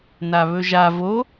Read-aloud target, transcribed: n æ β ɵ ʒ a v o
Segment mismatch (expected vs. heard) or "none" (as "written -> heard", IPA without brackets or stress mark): æ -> a